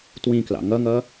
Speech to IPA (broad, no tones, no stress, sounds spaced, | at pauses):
t w ĩ k l ɑ̰ ŋ ʌ ŋ ʌ